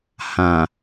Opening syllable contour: low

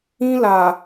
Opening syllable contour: high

